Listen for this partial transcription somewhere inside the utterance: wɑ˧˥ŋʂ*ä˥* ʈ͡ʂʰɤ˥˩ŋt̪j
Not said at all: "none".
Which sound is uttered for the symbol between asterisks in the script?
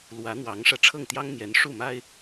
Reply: ä˧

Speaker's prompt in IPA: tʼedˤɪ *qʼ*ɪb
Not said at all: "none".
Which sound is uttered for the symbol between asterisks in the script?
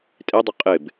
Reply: qʼ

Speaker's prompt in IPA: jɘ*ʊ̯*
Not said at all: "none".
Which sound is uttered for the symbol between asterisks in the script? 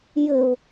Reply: ʊ̯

